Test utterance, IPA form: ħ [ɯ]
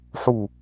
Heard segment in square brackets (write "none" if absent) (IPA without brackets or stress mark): u